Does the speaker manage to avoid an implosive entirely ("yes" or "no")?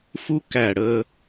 yes